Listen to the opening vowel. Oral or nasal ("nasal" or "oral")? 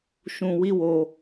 nasal